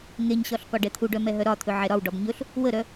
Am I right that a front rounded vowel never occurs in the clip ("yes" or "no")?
no